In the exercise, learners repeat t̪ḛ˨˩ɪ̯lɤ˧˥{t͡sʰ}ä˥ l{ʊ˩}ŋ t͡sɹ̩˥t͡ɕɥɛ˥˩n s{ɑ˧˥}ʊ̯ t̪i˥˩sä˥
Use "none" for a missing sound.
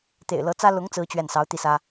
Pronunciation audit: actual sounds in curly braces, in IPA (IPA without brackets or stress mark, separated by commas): t͡s, ʊ˧˥, ɑ˧˥